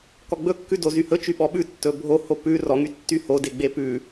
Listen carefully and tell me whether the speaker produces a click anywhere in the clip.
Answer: no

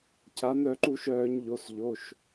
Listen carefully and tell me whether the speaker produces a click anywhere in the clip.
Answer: yes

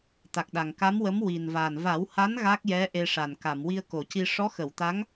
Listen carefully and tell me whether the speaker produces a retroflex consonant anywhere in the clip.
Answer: yes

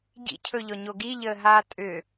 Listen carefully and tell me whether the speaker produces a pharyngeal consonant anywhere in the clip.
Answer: no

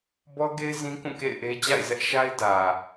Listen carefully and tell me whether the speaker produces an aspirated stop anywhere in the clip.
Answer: no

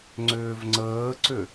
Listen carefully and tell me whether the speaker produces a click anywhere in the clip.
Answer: yes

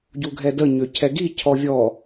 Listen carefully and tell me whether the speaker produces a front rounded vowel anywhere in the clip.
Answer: yes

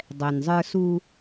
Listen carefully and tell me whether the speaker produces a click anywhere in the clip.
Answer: no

